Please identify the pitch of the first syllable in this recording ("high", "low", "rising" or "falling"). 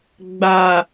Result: low